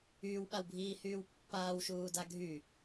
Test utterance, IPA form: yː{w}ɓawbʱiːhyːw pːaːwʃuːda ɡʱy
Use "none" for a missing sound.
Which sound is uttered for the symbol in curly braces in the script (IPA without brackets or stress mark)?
w